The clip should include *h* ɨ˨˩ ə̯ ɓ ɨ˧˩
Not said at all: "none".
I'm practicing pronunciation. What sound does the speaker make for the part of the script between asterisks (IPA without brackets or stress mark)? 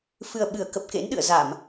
f